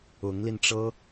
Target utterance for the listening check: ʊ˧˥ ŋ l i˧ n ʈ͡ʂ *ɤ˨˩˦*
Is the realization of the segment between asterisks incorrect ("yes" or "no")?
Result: yes